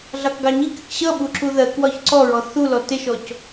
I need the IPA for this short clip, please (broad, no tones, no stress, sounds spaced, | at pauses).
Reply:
ɮ ɑ k ɡ ɑ ɲ i k ɪ k ɕ ʌ ɓ u ǁ u ð ɜ k w ɒ ç ǀ ɔ ɹ ɔ θ u l ɔ t ɪ ʃ ɔ c